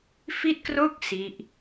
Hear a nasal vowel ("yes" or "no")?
no